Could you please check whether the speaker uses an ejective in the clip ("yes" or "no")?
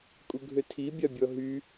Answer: yes